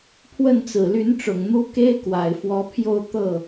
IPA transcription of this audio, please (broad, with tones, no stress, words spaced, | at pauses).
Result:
pʰwə˥˩nt͡sɹ̩˨˩ly˧˥nʈ͡ʂʊ˨˩ŋ n̪u˧˥ ke˥ɪ̯kwa˨˩ɪ̯fwɔ˧˥pʰjo˥˧ʊ̯ t̪ɤ˥˩